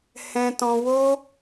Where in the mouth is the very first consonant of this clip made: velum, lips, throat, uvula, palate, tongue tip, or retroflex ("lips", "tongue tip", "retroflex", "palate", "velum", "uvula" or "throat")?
throat